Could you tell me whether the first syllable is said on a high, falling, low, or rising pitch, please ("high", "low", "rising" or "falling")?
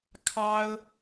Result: high